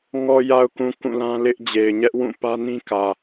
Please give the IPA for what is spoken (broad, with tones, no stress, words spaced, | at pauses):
ŋɔ˨ja˨ʊ̯kũ˨ kũ˦˨lã˦lɪ˦ʔ d͡ʑe˨ɪ̯ɲɛ˦ʔwũ˦˨ pä˦nĩ˦ kä˨